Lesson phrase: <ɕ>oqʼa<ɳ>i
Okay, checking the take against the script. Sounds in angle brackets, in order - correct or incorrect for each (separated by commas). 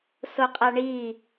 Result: incorrect, correct